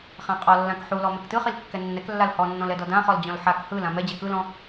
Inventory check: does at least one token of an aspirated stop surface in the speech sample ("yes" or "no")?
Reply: no